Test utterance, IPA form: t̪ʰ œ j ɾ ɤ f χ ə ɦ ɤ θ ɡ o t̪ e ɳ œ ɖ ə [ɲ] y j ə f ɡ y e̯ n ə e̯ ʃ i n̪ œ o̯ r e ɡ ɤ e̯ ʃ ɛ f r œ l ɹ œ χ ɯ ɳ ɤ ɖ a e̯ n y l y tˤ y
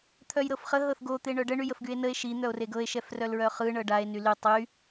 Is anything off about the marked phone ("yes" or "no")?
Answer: yes